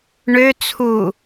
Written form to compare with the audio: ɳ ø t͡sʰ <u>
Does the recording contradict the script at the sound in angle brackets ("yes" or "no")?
no